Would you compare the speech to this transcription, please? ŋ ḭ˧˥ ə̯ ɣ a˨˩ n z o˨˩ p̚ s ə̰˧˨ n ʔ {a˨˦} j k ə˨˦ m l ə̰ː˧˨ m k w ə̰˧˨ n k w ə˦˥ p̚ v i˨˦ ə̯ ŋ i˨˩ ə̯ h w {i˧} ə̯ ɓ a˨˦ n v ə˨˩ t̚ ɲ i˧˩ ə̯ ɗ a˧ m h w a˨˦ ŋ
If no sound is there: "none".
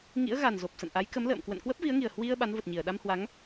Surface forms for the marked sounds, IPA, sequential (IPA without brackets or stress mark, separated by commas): a˨˦, i˧